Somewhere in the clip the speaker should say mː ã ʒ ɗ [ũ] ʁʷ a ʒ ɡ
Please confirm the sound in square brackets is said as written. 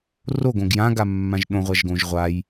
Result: no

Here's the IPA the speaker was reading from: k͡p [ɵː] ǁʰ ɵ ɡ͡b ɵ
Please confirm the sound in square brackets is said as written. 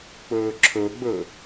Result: yes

